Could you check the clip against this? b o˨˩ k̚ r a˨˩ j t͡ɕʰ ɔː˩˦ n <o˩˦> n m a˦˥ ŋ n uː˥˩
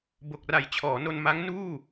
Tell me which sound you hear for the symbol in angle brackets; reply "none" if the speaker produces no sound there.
o˧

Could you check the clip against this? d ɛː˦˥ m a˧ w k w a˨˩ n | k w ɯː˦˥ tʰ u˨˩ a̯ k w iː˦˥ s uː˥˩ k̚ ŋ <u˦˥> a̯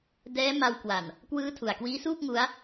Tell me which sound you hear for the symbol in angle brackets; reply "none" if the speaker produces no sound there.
u˦˥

